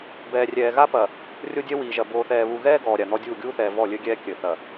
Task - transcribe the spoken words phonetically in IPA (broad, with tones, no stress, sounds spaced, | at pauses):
b ɛː˨ rʲ ɛː˨ ɣ a˦ p ɐ˨ | rʲ o˦ dʲ ɛ˦ w iː˨ ʒ ɐ˨ b oː˨ θ ɛː˨ β u˨ ɣ ɛː˦ ɡ ɔː˨ ɾʲ a˨ n̪ ɔ˦ dʲ uː˦˨ ɡʲ uː˦ θ ɛː˨ v ɔ˦˨ lʲ ɘ˦ ɡʲ ɛː˦ kʲ ɘ˨ θ ɐ˨